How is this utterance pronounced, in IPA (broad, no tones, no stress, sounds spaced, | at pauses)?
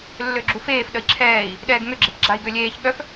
lː ø ɡ͡ǁ u f eː f ɗ ə i̯ ǁʰ ɛː i̯ | ɗ ɛː ɡ ŋ ø ɡ͡ǁ e p ɡ͡ǁ a i̯ ɡ ø lʲ eː ç ɠ œ f